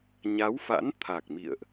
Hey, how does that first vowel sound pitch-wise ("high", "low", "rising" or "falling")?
rising